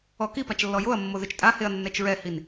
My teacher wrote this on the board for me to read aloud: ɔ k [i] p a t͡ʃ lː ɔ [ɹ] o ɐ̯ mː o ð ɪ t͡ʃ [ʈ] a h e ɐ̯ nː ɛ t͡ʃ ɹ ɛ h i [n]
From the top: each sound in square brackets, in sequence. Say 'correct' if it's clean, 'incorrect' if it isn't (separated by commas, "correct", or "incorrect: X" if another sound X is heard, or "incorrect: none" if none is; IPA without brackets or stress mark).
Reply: correct, incorrect: j, incorrect: tʼ, correct